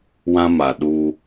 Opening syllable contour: high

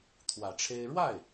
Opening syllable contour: low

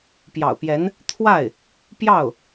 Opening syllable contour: low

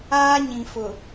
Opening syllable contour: high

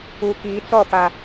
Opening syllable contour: low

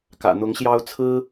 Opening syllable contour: low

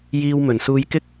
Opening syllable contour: high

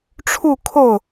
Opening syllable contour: falling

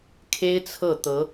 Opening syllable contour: high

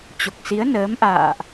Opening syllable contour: low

